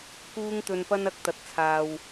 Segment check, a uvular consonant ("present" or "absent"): absent